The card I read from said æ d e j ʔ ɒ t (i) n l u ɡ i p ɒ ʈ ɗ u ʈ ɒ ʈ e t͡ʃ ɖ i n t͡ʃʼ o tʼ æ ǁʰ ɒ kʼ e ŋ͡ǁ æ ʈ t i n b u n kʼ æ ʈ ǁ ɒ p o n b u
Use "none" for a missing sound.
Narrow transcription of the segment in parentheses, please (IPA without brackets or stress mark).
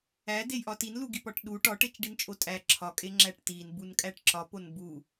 i